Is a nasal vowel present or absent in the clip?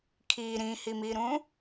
present